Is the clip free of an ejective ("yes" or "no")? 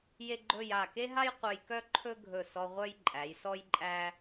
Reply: no